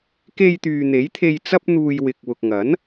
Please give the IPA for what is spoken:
k e˧ j t̪ yː˨ n̪ e˨˥ j t̪ʰ e˧ j t͡s ɐ˥ p̚ n̪ uː˧ j w ɪ˧ k̚ w ʊ˨ k̚ ŋ ɐ˨˥ n

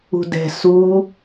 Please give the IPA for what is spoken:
ṳ d ɛ̤ s u

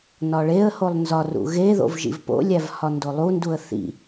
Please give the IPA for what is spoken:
n ɒ ɭ e ə̯ h o lˠ n z ɒ r ṵ ɣ e ð o̰ v ʒ ḭ v p o̰ lʲ æ v h ɒ n d o lˠ u n d u ə̯ θ ḭ

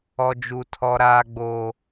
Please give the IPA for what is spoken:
ɔ˦ d͡ʒ u˦ tʰ ɔ˦ ɾ aː˦ ɡ͡b oː˦

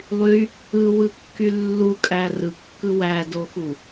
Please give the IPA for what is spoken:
lˠ y | ɯ w ɯ kː y lː u kʼ æ r ɯ kː ɯ w æ d o x u

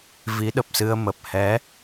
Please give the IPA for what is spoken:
v i˨˦ ɗ ə˨˩ p̚ s ɨ˧ ə̯ m ə˨˩ p̚ h ɛ˨˦

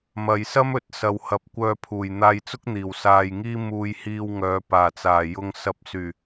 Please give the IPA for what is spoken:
m ɐ˨ j s ɐ˥ m ɵ˨˥ t̚ s ɐ˨ w h ɐ˨˥ p̚ kʷ œː˧ pʰ uː˨˩ j n̪ aː˧ j t͡s ʊ˥ k̚ n̪ iː˨˩ w s aː˧ j ŋ iː˥ m uː˧ j h iː˧ w ŋ œː˨˧ p aː˨˩ t͡s aː˨˩ j ʊ˨ ŋ s ɐ˨ p̚ s yː˨˩

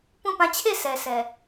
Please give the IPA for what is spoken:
p ũ˦˨ p ã˦˨ t͡ɕʰ e˦˨ s ɛ˨ s ɛ˨

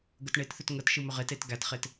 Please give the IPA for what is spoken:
ɡ ə t ɳ e t θ ʏ t ŋ ə t ʃ ɯ m ʏ ʁ e t e t ɡ æ t χ e t

